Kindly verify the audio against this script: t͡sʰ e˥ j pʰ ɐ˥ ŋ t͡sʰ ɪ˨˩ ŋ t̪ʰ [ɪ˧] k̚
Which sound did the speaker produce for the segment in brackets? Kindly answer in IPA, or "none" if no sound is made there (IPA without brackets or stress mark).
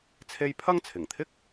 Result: ɪ˥